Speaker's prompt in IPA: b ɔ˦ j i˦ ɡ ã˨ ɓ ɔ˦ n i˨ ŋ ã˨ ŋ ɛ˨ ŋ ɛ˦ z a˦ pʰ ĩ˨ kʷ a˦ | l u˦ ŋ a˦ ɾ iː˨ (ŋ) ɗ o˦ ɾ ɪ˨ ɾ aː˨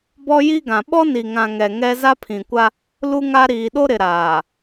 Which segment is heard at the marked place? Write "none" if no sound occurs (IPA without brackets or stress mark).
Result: none